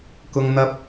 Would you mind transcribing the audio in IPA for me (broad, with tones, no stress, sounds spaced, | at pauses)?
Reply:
k ʊ˥ ŋ n̪ ɐ˥ p̚